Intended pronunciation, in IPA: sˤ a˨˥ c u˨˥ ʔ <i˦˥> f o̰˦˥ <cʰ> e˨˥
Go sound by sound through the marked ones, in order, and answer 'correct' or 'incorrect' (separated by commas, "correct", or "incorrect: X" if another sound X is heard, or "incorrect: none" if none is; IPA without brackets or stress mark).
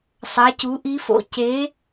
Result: correct, incorrect: c